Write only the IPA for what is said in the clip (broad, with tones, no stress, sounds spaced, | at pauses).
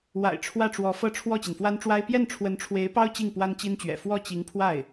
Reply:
w a̰˨˩ ɪ̯ ʈ͡ʂʰ w ä˥˩ ʈ͡ʂ w ɔ˧˥ f ɤ˥˧ ʈ͡ʂʰ w ɔ˥˩ t͡ɕ i˩ n f w a˥ n ʈ͡ʂ w a˥ ɪ̯ p j ɛ˥˩ n ʈ͡ʂʰ w ə˧˥ n ʈ͡ʂʰ w e˧˥ ɪ̯ p ɑ˥ ʊ̯ t͡ɕ i˥˩ ŋ p w a˥ n t͡ɕ i˥ n t͡ɕ ɥ ɛ̰˨˩ f w ɔ˥˩ t͡ɕ i˧˥ ŋ pʰ w a˥˩ ɪ̯